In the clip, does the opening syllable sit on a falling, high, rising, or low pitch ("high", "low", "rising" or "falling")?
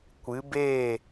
rising